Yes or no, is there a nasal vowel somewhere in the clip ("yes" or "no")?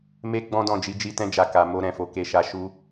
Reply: yes